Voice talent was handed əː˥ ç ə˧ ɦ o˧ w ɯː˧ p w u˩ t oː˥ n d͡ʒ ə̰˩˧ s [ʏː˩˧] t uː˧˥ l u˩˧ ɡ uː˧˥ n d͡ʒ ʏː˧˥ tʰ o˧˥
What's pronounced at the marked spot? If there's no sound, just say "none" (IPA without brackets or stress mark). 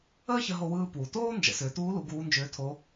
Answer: ʏː˩˧